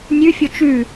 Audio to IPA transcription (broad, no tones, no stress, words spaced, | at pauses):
nʲʉfʲo t͡ʃʉ